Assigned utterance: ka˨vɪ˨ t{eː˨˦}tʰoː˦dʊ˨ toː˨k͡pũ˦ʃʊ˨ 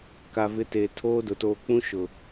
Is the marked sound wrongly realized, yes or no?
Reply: yes